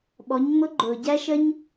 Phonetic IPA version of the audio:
ɓɔ˩˧ɲŋ͡mʊ˧˥ ɡ͡ǃʊː˩ɟæ˥ʃə˥ɲ

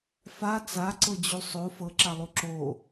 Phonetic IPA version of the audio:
fa t͡saǀɤd͡ʑu sˤo fɤǁalˠu ǁo

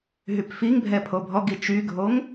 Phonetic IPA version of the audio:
ɦypfiŋbʱɛ pʰobʱɔɡi t͡ʃyɡʱoŋ

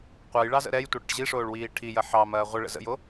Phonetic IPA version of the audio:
qʷɑjɭɑzə̰ ɾɛjtʷɐɽə̰ʈ ʑiʂoːɭwiː ʈʰijɐ ħɑmɐː ʁʷəɭə̰ zə̰jo

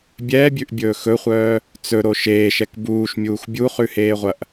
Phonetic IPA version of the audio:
bʲɛːbʲʉʔbʲɵː xɵχʷœː | t͡sɵɾo ʃeːʃɛk buːʃmʲuːx bʲuχʉheːʁʷɐʔ

